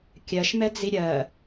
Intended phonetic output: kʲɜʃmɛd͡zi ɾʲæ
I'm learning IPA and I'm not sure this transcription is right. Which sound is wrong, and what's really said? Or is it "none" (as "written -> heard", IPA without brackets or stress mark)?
æ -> ɜ